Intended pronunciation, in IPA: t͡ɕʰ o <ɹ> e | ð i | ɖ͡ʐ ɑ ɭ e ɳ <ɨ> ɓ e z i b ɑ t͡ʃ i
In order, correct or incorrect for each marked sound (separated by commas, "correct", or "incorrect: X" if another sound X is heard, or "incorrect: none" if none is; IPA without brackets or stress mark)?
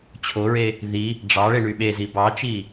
correct, incorrect: y